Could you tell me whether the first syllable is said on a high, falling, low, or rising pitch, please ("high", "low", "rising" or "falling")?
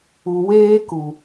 low